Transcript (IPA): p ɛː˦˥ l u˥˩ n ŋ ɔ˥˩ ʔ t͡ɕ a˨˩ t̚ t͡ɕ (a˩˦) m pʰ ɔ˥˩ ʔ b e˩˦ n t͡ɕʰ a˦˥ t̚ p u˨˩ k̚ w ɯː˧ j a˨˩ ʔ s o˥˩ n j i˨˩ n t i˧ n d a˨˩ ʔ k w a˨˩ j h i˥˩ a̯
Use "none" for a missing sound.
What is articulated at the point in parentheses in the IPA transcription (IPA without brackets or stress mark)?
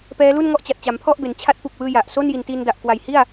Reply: a˩˦